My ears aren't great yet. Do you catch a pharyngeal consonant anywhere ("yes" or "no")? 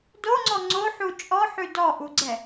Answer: yes